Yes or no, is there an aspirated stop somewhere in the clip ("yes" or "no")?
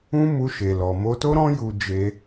no